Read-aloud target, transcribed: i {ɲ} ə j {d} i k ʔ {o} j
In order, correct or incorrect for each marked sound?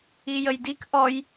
incorrect: j, correct, incorrect: ɔ

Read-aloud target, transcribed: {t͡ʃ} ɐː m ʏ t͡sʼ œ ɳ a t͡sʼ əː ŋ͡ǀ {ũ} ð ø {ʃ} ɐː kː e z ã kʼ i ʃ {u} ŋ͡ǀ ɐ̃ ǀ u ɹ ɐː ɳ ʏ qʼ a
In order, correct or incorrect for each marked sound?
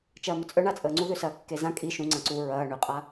correct, incorrect: u, incorrect: s, incorrect: ũ

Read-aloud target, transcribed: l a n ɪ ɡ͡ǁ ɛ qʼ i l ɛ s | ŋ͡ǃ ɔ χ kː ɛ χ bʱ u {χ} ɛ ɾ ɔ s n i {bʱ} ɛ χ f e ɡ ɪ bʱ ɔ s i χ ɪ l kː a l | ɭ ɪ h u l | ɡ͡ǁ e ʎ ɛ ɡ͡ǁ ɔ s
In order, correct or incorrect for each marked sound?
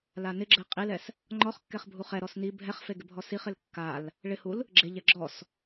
correct, correct

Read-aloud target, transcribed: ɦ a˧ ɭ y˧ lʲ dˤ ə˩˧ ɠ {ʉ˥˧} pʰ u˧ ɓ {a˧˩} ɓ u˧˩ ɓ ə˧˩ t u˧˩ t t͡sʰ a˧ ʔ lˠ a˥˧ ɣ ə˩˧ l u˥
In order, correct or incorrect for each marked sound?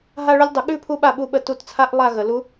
correct, correct

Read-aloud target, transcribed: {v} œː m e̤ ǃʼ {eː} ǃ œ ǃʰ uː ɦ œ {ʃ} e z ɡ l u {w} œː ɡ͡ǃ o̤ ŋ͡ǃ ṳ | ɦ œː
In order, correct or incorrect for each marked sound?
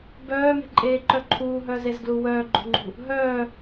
incorrect: b, correct, incorrect: z, correct

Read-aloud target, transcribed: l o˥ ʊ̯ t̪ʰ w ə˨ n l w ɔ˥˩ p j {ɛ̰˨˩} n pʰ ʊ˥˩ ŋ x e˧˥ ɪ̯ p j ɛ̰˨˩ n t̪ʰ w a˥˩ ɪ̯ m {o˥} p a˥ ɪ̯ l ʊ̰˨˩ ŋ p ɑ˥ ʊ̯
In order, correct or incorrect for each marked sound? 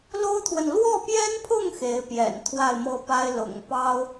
incorrect: ɛ˥, incorrect: ɤ˥

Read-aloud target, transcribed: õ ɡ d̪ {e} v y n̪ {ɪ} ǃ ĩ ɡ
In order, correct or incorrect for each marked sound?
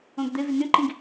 correct, incorrect: y

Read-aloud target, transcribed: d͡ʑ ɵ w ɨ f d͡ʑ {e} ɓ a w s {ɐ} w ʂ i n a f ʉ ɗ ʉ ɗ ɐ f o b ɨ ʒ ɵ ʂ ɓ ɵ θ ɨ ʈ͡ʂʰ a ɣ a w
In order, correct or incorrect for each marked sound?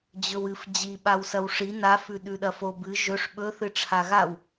incorrect: i, correct

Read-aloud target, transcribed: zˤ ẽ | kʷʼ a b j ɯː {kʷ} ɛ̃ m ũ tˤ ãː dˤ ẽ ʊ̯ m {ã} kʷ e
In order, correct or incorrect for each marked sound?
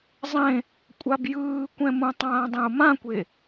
correct, correct

